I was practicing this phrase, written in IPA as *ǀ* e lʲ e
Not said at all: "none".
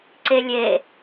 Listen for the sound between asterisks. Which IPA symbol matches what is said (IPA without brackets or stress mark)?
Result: ǀ